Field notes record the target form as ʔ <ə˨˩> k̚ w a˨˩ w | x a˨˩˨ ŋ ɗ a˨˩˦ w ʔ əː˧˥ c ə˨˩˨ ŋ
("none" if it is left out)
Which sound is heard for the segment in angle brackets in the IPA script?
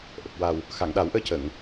ə˨˩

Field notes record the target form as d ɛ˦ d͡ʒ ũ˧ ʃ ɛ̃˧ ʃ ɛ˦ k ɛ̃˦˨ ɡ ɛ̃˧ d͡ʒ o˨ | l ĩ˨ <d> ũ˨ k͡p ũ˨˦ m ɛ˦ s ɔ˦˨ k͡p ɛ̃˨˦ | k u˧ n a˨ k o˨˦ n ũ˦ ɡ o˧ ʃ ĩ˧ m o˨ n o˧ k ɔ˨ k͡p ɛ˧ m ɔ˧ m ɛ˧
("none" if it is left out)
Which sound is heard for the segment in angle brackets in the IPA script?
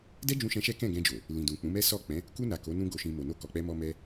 d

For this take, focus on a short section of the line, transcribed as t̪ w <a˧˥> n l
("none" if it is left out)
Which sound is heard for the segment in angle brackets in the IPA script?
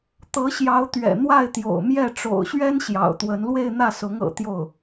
ə˧˥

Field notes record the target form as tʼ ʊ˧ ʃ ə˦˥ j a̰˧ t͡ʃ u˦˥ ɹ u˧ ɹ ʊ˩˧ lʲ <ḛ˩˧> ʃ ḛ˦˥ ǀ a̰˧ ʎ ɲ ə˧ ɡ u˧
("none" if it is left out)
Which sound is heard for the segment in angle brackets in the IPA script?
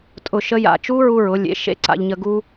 ḛ˩˧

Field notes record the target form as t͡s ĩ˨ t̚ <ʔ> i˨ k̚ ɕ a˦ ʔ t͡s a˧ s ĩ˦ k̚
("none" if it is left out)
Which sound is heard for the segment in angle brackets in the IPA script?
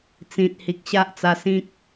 h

